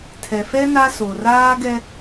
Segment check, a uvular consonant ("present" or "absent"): absent